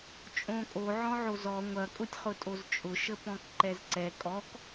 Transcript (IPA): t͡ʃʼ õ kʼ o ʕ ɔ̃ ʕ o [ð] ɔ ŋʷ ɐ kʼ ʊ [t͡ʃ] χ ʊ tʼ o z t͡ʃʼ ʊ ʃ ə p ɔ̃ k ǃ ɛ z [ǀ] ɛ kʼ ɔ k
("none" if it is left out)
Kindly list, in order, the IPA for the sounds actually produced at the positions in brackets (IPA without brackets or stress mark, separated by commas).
z, tʲ, ǀ